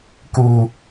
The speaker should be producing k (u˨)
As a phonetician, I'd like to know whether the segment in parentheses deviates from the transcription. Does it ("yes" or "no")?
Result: no